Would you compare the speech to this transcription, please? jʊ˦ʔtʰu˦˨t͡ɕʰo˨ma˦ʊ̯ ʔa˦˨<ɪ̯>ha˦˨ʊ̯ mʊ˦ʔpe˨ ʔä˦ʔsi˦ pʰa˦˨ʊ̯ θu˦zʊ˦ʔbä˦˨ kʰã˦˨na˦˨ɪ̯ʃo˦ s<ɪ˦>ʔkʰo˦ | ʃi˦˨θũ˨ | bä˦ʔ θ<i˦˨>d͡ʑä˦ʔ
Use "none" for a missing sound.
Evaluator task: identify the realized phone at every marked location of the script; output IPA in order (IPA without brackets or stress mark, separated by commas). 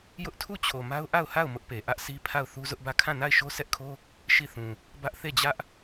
ʊ̯, ɛ˦, e˦˨